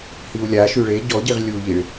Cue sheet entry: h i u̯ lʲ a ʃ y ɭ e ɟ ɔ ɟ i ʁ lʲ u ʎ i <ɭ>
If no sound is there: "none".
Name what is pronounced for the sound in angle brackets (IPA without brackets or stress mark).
ɭ